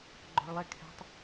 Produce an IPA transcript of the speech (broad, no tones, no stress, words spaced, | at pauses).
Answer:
ɡ͡ǃɔ̤ɭlˠɛkʰɛ̤tˤ